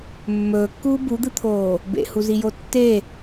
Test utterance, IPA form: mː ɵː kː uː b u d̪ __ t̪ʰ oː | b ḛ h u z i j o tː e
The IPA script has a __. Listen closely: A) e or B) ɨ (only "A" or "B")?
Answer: B